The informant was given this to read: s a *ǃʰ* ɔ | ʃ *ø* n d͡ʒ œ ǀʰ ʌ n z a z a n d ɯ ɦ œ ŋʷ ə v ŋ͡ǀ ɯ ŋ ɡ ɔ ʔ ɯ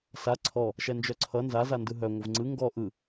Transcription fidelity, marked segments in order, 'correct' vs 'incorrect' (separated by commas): incorrect, incorrect